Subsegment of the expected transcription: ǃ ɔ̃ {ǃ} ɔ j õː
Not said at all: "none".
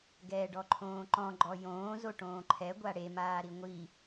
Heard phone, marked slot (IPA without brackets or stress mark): ɡ͡ǃ